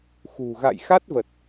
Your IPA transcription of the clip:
x ṳ˨˩ ɣ a̰˧˨ j x a˦˥ t̚ v ə˨˩ t̚

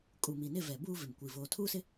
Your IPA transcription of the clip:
kʼ u˨ m i˨ n ɪ˦˨ v ɛ˨ b uː˦ v ɪ˨ m kʷ i˨ v oː˨ tʰ uː˦ s ɪ˦

